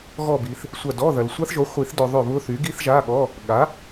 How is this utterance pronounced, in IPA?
ɣ ɔ˦˨ b i˨ θ | sʷ ɐ˦˨ d ɔ˧˥˧ ð ɐ˨ l sʷ a˦˥ θ ʒ o˩˥ χʷ i˨˩˦ θ d œ˨ ðˤ ʏ˦˨ β ʊ˦˥ θ y˩˥ ɡ i˦˥ θ ʒ a˧˥˧ ɠ ɔ˧˥˧ | ɠ a˩˥

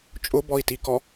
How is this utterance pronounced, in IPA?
t͡ʃʼ ʊ b ɔ i̯ t i k ɔ

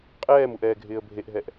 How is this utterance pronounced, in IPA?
qʼ ɛː m u ʔ ɛː ɡʱ ɪː ə̯ bʱ e ʔ ɦ ɛ ʔ

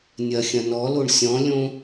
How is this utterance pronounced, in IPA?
nʲ ɐ xʲ ɐ̃ n ɔ l o ɳ sʲ ɔ̃ lʲ õ

